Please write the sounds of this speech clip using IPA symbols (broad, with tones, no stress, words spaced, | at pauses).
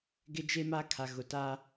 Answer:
ɡɪ˦d͡ʒe˦ma˦kʰa˨ ɣʊ˨ta˦